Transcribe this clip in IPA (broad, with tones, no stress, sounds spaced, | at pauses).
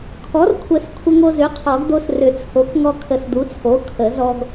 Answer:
kʰ ɔ˩˥ r kʷʰ ə˨˩˦ s kʷʰ ə˧ ŋ o˧ z ʏ˩˥ qʰ ɔ˨˩˦ ɡ d̪ o˧ s r ʏ˨˩˦ t͡sʰ o˩˥ k ŋ ɔ˧ kʰ ə˨˩˦ s d̪ u˩˥ t͡sʰ o˩˥ kʰ ə˨˩˦ z ɔ˧ ɡ